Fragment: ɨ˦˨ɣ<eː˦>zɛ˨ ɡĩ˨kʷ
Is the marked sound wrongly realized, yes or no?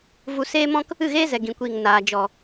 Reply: no